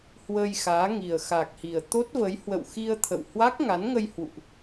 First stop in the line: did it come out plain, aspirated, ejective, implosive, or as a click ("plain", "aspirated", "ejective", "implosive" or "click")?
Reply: plain